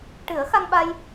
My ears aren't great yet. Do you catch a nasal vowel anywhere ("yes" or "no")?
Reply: no